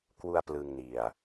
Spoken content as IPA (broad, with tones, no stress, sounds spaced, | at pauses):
k w u˧ a̯ p l ɯ˧ ŋ n i˨˩ a̯